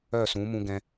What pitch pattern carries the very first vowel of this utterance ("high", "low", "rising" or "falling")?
falling